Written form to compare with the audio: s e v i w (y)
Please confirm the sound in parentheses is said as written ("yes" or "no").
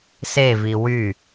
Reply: yes